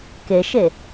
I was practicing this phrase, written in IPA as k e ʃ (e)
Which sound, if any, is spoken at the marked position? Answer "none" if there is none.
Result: e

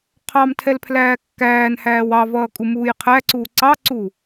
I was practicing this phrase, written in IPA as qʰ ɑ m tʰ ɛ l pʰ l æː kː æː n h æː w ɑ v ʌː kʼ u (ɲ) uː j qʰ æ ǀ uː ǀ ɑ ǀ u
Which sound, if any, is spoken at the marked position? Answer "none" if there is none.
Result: m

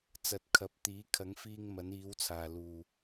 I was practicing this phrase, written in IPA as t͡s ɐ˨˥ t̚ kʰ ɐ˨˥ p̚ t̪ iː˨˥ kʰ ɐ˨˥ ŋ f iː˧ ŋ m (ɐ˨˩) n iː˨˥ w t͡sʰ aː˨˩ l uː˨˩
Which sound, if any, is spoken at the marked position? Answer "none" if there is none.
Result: ɐ˨˥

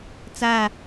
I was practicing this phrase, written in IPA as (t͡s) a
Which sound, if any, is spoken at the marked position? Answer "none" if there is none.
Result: t͡s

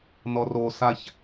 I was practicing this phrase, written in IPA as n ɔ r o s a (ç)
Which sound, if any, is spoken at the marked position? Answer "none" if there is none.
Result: ç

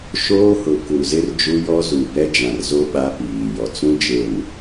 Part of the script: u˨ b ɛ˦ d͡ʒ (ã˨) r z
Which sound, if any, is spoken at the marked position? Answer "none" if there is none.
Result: ã˨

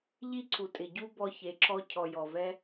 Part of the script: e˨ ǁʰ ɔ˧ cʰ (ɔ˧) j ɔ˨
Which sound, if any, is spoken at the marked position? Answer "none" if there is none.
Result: ɔ˨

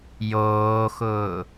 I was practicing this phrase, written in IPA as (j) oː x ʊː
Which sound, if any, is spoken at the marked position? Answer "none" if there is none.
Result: j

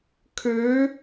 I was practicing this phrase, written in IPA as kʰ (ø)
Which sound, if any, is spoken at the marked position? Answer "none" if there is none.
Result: ø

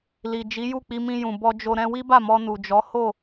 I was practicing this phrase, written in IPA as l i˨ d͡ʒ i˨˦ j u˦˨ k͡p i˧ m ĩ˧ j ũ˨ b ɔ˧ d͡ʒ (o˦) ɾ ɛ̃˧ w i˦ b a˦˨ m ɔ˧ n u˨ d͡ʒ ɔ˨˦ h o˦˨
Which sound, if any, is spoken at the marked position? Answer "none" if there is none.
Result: o˧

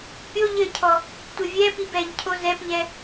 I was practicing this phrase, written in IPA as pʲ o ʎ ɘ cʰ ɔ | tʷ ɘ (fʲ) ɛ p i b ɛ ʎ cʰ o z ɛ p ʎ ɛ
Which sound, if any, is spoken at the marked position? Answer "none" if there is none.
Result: vʲ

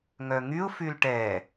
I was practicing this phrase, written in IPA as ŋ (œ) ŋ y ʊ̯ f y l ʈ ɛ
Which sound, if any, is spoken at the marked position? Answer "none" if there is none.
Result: œ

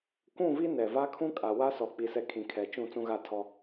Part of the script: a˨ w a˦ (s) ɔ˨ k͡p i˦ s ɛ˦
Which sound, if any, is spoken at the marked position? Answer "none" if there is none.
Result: s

